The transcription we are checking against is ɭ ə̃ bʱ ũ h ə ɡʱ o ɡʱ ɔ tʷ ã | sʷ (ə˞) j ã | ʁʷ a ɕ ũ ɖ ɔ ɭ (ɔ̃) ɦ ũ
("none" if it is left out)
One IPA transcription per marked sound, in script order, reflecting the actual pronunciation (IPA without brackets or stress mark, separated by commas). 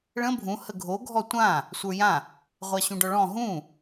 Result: ə˞, ɔ̃